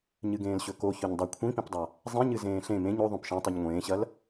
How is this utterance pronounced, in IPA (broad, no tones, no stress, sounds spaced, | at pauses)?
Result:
ɲ ɨ ɡ ẽː l ɕ ɵ k o ç ɵ ɲ dˤ ɐ kʷʰ ĩ p ĩ p dˤ a | zˤ ĩ ɲ ɨ z ẽː ɬ ẽ m ẽ ɲ o ðˤ õ p ʃ ẽ tˤ i ɲ ŋʷ ẽː ɕ ɐ l